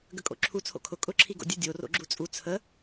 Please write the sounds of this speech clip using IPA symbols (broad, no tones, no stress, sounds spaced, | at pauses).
ɡ ə kʼ o̰ ǁʰ u t͡sʰ o̰ kʰ ʊ kʼ ʊ ǁʰ i ɡ o̰ dʲ ə dʲ o r o̰ ɡ͡ǁ u t͡sʼ u t͡sʰ ə